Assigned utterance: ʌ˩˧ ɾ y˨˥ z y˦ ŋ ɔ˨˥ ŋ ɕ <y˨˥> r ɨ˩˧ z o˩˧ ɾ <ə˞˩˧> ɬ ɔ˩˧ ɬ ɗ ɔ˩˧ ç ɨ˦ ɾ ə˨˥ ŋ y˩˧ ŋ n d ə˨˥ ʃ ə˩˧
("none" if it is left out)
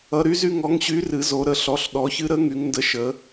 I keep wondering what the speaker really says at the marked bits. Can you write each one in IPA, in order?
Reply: y˨˥, ə˩˧

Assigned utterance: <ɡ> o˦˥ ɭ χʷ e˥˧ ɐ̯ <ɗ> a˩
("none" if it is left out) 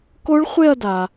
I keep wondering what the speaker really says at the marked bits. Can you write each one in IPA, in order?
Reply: k, d

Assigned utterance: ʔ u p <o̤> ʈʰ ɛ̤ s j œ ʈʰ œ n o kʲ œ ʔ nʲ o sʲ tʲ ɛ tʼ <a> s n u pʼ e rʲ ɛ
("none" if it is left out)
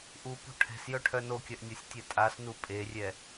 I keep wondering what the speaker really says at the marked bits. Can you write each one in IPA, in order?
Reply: o̤, a

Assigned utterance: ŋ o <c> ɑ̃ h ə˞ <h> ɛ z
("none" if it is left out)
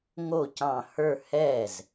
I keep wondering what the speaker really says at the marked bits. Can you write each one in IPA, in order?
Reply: c, h

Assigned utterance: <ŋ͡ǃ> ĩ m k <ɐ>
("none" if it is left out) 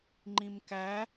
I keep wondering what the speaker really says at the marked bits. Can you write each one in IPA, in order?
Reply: ŋ͡ǃ, æ

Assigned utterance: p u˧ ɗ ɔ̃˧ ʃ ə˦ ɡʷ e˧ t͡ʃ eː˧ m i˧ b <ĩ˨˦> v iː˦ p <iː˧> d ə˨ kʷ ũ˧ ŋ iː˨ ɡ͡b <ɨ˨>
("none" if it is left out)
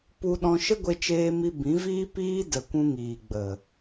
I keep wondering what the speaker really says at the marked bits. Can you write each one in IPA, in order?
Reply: ĩ˨˦, iː˦, ə˨

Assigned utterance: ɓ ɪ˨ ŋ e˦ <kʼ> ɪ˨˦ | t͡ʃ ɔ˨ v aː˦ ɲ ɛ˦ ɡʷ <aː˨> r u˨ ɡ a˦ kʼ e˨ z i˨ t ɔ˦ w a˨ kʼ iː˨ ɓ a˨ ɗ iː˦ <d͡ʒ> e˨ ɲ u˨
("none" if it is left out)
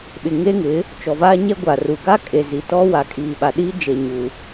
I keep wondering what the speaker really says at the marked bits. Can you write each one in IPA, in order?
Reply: ŋ, a˨, d͡ʒ

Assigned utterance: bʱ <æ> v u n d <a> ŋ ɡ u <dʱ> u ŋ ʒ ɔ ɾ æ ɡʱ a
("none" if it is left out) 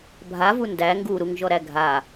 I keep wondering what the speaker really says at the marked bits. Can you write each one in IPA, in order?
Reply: a, æ, ɾ

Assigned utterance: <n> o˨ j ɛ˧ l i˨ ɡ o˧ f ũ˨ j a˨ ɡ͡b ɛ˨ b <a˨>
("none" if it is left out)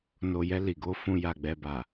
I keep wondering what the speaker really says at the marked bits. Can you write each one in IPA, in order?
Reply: n, a˨

